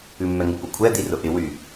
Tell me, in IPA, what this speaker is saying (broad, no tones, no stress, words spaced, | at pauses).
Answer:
ʉmːɛŋɪ pʊkʷʰɛ d̪irʊʔɪ wy